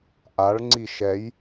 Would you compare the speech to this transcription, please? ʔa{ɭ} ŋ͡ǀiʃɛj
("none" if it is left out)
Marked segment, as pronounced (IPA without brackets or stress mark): ɭ